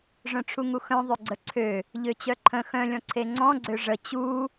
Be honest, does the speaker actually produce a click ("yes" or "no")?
yes